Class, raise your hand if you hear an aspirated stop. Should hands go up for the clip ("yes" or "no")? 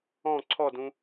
yes